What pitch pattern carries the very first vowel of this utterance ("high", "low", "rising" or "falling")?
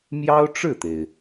high